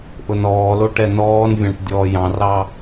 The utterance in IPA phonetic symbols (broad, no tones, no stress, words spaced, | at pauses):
ʔʊnɔːlo ʈɛnɔːnvʲɑ̃ʈ dʲɔːjɑ̃rɑ